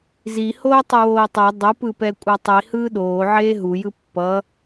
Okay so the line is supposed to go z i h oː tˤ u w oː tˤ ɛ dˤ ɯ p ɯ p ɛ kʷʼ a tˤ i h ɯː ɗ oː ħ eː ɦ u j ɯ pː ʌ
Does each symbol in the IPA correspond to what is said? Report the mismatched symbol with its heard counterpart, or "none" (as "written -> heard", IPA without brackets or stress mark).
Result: ħ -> ʕ